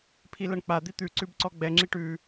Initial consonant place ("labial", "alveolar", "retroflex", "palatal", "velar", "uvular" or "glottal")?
labial